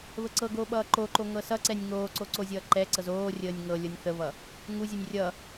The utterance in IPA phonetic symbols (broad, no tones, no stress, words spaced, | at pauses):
βəǀɤɡoː ɓʌːǃoǃo ŋɤsʌǀɛnʲ ŋoːǀo ǀozʲʌːǃɛǀɤz oːrʲəːnʲ ŋɤ lʲɤnʲθəβʌ | ŋuzʲɤnʲ rʲʌ